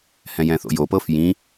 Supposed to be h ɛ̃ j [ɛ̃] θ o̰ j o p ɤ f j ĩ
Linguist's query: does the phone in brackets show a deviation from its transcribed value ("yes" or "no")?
no